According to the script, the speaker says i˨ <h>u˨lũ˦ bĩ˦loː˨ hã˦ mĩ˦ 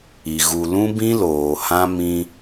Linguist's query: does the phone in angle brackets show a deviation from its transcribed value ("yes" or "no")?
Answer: yes